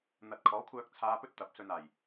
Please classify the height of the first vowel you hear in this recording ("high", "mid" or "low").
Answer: low